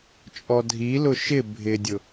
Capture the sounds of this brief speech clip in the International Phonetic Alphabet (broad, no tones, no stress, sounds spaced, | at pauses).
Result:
t͡ʃʼ ɔ dʱ i l ʊ ʃ ɪ bʱ ɪ dʲ ʊ